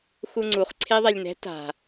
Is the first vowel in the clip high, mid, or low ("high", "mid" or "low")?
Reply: high